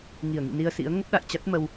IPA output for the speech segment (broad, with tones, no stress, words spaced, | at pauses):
ŋi˧˩ə̯ŋḭ˧˨ni˧ə̯sḭ˧˥ə̯ ŋə˦˥p̚ɗa̰˧˨jt͡ɕa˦˥t̚ mə˧w